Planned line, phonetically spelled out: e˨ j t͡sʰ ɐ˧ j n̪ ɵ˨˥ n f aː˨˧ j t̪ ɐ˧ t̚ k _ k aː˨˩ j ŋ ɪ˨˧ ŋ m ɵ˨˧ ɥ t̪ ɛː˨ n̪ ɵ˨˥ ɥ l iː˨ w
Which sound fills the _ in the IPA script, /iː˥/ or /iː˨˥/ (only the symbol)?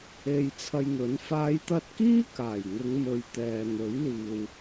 iː˥